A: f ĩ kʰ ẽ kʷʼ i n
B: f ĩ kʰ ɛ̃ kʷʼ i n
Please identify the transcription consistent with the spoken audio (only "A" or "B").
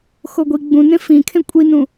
A